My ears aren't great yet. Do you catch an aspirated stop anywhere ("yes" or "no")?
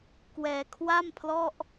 yes